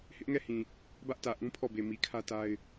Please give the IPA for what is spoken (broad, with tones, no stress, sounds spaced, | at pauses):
h ɪ˦ ʔ ŋ ɛ˦˨ h ĩ˨ | b ä˦ ʔ t ä˨ ʔ ũ˦ pʰ ɔ˦˨ b e˨ m i˨ kʰ ä˦ t a˦ ɪ̯